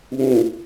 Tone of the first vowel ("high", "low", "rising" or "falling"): low